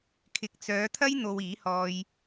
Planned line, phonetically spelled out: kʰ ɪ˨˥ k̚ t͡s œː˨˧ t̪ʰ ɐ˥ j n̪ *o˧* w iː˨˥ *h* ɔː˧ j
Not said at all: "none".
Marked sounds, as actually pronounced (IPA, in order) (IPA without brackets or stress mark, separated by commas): o˧, h